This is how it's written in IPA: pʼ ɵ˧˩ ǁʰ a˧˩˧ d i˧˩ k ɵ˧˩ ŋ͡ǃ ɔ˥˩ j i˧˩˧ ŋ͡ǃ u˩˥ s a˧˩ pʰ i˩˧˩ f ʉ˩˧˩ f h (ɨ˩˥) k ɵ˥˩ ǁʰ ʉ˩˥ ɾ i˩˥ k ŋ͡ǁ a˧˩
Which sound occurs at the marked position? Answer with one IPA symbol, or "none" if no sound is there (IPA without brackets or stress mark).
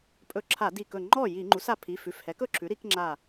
ɛ˩˥